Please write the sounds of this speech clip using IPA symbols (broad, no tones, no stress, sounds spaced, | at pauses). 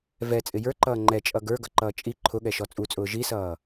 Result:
v ɛ t͡sʼ ɪ j ə˞ ǃ ʌː ŋ͡ǃ ɛ t͡ʃʼ ʌ ɡ ə˞ ɡ ʌ ǃ ʌː t͡ʃʼ i ǃʰ ʊ ɠ ɛ ʃ ɔ t͡sʼ u t͡sʼ ʊː ʒ i s ʌː